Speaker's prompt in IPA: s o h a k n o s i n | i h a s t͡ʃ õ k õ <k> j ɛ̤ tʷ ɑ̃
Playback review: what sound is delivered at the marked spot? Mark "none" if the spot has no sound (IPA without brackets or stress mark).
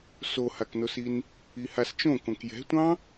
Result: k